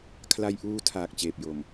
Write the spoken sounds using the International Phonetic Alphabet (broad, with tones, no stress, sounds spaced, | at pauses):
kʰ l a˧ j ʔ uː˧ tʰ aː˨˩ k̚ t͡ɕ eː˨˩ p̚ j o˨˩ m